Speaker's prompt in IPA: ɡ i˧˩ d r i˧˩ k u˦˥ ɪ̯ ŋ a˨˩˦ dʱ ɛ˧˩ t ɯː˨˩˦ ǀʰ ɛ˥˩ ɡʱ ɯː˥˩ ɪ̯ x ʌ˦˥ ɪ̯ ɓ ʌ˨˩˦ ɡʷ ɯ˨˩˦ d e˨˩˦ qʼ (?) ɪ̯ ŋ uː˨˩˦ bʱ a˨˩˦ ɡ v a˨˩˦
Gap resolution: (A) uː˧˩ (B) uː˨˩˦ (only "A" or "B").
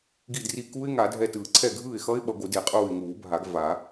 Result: A